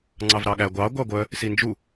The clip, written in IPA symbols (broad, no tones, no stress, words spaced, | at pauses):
ŋ͡ǀɑvɾɑɠæ ɡʷɑ ɡʷɑɡʷœ | sind͡ʒu